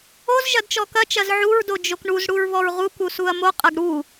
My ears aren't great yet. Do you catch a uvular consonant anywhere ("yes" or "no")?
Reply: yes